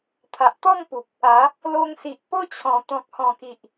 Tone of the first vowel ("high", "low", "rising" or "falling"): low